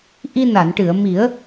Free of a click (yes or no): yes